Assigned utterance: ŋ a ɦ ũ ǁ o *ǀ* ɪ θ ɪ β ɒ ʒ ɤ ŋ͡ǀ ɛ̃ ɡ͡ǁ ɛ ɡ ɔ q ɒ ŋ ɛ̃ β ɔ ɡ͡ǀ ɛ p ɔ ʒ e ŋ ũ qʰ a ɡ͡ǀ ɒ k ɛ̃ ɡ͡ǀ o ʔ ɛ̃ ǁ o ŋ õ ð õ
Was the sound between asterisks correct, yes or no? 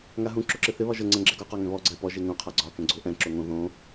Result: no